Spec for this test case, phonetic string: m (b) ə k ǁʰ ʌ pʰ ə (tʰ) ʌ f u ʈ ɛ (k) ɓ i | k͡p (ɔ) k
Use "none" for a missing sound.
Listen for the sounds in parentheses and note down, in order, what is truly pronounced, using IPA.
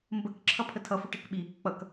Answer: b, tʰ, k, ʌ

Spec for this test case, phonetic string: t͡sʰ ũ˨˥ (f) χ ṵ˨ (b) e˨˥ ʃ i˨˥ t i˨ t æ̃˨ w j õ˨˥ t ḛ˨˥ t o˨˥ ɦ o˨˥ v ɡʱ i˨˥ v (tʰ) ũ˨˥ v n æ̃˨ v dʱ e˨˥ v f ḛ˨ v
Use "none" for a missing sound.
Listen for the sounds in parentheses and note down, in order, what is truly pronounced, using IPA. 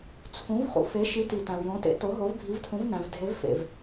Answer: v, f, tʰ

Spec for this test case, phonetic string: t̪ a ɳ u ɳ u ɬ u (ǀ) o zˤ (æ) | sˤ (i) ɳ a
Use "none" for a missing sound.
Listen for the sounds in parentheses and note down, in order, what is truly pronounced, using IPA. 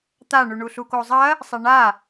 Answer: k, ɐ, i

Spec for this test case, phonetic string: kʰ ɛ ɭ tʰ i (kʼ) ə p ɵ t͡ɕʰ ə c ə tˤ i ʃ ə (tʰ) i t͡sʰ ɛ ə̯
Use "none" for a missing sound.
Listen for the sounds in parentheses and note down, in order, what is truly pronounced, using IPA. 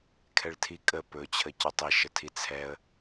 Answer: kʼ, tʰ

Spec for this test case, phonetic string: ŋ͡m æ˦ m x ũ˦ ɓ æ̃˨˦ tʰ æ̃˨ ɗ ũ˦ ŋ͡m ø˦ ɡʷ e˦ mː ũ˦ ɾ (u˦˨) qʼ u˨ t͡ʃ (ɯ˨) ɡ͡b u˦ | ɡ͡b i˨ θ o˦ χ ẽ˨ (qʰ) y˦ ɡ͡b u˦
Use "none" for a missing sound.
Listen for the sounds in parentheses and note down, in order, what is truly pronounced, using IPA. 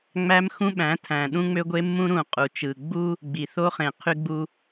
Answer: ũ˦˨, ɯ˨, qʰ

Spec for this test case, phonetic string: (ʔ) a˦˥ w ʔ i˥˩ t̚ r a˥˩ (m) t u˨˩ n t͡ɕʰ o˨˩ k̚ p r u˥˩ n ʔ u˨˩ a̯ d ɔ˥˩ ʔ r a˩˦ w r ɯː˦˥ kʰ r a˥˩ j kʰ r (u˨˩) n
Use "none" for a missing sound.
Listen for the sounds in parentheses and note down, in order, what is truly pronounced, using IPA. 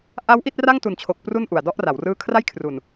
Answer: ʔ, ŋ, u˨˩

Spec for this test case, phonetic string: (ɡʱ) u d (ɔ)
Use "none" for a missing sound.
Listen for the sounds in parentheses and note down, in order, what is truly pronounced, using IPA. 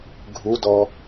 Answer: ɡʱ, ɔ

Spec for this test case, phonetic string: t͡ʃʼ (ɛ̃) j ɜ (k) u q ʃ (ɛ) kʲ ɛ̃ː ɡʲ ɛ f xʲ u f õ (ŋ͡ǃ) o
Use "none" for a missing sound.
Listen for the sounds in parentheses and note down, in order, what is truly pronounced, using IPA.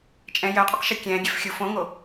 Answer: ɛ̃, qʼ, ɛ, ŋ

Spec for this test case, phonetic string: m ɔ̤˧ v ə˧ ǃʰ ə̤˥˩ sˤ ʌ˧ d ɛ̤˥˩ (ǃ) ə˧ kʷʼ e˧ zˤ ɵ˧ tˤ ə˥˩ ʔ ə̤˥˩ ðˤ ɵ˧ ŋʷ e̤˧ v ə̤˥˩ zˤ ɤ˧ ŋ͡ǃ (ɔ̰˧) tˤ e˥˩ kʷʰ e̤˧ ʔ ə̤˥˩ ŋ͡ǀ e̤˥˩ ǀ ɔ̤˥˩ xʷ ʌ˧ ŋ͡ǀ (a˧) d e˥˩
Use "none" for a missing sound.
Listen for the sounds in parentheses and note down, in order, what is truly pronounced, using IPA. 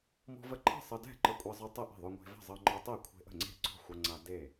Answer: ǃ, ɔ˧, a˧

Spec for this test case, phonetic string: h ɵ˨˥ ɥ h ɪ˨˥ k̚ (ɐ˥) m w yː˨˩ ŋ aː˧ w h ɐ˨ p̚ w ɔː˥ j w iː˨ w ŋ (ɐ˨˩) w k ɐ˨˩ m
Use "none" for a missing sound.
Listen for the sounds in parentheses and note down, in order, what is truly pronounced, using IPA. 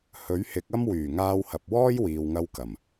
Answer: ɐ˥, ɐ˧

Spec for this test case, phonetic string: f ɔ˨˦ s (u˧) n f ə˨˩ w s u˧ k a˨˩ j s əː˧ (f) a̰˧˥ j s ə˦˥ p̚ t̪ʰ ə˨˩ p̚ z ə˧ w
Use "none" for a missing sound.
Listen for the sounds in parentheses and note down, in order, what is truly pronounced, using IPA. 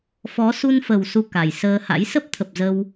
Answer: u˧, h

